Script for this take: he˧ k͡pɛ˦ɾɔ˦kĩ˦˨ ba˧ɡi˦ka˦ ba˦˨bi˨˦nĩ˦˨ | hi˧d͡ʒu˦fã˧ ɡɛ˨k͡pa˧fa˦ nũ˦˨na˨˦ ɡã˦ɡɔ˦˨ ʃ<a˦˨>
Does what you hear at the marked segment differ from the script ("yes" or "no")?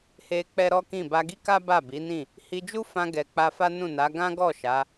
yes